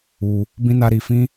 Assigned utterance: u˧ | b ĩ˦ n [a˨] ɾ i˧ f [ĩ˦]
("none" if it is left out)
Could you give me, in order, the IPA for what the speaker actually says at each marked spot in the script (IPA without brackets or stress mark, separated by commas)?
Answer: a˦, ĩ˦